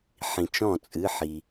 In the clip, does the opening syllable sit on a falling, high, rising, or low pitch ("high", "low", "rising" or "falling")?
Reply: low